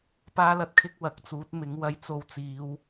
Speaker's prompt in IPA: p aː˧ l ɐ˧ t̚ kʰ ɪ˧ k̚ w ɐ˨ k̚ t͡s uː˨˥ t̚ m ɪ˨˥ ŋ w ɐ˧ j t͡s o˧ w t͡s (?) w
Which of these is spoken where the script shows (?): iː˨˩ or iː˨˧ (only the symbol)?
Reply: iː˨˧